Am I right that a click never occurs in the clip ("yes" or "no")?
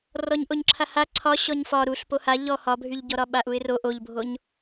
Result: no